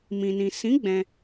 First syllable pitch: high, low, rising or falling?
low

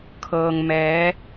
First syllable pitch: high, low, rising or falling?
low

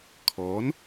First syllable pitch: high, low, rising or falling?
rising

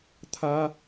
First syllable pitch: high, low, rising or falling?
high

